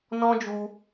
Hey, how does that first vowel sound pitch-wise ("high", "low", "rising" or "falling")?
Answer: high